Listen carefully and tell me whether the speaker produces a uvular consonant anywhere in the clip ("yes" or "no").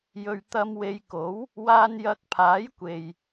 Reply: no